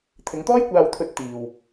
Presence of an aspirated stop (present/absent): present